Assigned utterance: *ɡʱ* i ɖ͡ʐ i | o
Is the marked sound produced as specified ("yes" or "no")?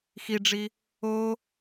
no